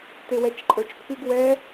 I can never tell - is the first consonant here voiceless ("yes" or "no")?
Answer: yes